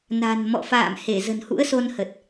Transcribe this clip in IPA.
n a̤˨˩ n m ɔ̰˧˨ f a̰ː˧˨ m h e˧˩ z ə̤˨˩ n h ṵ˧˥ ə̯ s o˧ n h ə˨˩ t̚

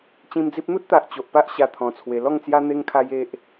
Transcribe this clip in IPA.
t͡ɕ ĩ˧ m d͡z i˦ p̚ n̪ u˦ t̚ t̪ a˨ ʔ t͡ɕ o˨ ʔ p a˦ ʔ ɕ a˧ t̪ʰ ɔ̃˧ t͡sʰ w e˧ l ɔ˥˧ ŋ t͡s j a˦ n̪ e˦ ŋ kʰ a˦ j e˦ ʔ

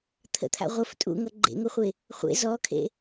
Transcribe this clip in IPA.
t̪ʰ ə̰ t̪ʰ a̰ ʁʷ ə f tʼ ṵ ŋ ʌ ɡ͡ǃ ḛ ŋ o χʷ e | χʷ ḛ z ɔ kʰ ḛ

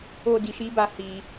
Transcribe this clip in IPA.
o˦ d i˧ ʃ i˦ b a˦ h i˧

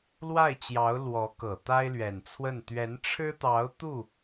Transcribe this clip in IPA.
l w a˥˩ ɪ̯ t͡ɕ j ɑ˧˥ ʊ̯ l w ɔ˧˥ k ɤ˨˩ t̪ a˥ ɪ̯ l ɥ ɛ˨˩ n t͡sʰ w ə˥˩ n t̪ ɥ ɛ˧˥ n ʈ͡ʂʰ ɻ̩˥ t̪ ɑ˧˥ ʊ̯ t̪ u˥˩

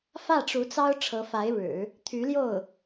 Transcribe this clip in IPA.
f ä˥˩ ʈ͡ʂ u˧˥ t͡s ɑ˥ ʊ̯ ʈ͡ʂʰ ɤ˧˥ f a˧˥ ɪ̯ ɻ ɻ̩˨˩˦ | t̪ʰ y˧˥ l j o˥˩ ʊ̯

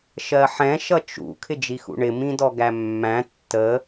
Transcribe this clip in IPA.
ʃ ɜ ħ ɛ̃ ʃ ʌ t͡ʃ ṵ kʰ ɪ d͡ʒ i x ṵ ɳ ɪ m ĩ d ɔ ɡ æ mː æ̃ tː ə

